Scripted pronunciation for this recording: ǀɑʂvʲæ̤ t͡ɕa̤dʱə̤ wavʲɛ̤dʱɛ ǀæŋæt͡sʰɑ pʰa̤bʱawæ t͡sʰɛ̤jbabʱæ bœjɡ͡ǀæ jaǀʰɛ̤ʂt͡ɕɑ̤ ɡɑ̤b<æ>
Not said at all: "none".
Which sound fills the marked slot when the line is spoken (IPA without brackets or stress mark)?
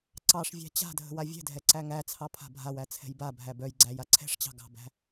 æ̤